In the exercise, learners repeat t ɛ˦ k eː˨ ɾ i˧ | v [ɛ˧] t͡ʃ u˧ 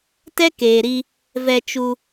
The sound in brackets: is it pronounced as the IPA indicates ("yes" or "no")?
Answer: yes